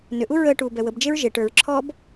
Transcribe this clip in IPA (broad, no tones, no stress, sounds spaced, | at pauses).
n ʏ ʔ u ɹ əː ʈ uː b ɛ w ə b d͡ʒ e ɹ ʒ e ʈ ə˞ ɹ ǁʰ ɔː b